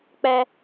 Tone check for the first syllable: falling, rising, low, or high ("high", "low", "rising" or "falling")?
high